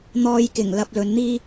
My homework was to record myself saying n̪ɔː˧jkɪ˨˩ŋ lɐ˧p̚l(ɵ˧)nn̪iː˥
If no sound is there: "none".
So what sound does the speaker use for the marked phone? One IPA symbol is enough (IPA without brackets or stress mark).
ɵ˨˧